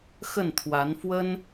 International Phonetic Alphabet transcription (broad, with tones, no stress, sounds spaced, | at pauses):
x ə˥˩ n t̪ʰ w a˧˥ n f w ə˥ n